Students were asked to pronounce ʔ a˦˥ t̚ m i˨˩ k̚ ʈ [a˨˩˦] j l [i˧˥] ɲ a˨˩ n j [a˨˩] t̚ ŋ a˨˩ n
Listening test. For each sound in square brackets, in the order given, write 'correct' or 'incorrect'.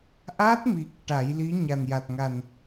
correct, correct, correct

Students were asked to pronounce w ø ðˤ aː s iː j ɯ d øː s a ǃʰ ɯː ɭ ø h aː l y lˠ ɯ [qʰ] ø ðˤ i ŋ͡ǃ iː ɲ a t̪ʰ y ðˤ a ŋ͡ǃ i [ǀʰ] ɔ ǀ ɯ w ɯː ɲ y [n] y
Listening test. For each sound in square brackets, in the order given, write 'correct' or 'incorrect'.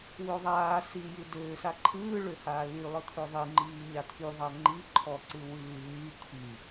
incorrect: t̪ʰ, incorrect: ǃʰ, incorrect: t̪ʰ

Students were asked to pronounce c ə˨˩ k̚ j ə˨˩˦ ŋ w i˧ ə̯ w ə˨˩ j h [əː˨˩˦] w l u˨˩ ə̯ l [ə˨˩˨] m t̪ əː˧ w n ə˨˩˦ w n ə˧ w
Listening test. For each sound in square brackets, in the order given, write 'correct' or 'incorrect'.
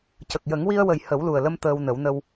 incorrect: ə˨˩˦, incorrect: ə˧

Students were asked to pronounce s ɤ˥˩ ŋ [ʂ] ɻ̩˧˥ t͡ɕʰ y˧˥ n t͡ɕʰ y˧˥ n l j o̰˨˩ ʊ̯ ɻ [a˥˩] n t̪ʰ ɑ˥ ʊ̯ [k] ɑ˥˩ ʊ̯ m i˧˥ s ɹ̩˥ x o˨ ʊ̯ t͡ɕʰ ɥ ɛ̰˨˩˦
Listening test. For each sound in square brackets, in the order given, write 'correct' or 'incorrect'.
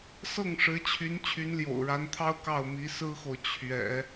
correct, incorrect: a˧˥, correct

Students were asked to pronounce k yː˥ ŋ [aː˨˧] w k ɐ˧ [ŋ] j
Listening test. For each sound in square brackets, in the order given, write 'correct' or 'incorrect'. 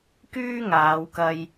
correct, incorrect: none

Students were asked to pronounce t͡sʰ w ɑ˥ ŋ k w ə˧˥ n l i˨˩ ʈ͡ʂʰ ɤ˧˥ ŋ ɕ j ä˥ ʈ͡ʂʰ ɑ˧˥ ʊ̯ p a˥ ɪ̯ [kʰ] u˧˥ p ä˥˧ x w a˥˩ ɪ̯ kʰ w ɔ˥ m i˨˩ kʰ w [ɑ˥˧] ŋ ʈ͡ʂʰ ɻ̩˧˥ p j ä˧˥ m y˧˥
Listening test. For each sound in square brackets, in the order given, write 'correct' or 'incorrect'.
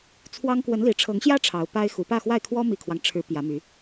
incorrect: x, incorrect: ɑ˦

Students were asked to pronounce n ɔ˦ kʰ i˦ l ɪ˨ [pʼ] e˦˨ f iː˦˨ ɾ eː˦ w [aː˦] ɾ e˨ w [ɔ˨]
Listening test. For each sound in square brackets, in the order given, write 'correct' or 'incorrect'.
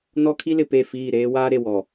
incorrect: p, correct, correct

